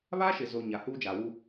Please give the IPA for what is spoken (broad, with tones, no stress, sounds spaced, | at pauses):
β a˦ ʃ ɪ˨ z o˨ ɲ a˨ h uː˦ d͡ʒ aː˨ w u˦